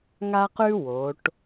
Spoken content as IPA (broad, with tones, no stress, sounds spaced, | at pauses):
ŋ a˥ q ʉ˥ w o˩˧ ʈ